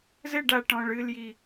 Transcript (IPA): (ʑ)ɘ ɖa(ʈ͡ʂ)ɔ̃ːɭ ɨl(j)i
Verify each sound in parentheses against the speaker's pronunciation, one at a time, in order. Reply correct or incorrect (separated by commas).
incorrect, incorrect, correct